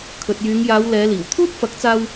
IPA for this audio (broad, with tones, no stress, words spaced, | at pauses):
kʰɵ˨t̚jyː˨˧ŋjaː˨˧w lɛː˨˧liː˨˩w t̪ʰuː˥t̚fɐ˨˥k̚t͡saː˧w